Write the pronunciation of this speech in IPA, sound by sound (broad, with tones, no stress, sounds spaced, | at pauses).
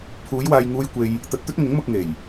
pʰ uː˨˧ j w aː˨ j ŋ uː˧ j kʷ e˧ j | t̪ ɐ˧ t̚ t̪ ɵ˥ t̚ ŋ ʊ˨˥ ŋ m ʊ˧ k̚ ŋ e˨˩ j